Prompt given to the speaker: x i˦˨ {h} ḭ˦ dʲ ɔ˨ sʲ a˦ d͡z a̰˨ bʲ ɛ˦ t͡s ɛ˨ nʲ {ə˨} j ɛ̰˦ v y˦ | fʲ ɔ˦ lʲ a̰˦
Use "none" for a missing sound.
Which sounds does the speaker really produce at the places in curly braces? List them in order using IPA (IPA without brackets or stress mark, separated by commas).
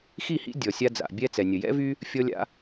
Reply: h, ə˨